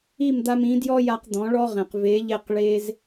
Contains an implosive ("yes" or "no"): no